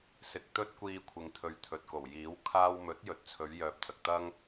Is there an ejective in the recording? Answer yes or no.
no